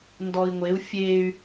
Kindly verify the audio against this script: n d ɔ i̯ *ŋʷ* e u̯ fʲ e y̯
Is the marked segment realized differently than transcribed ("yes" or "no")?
no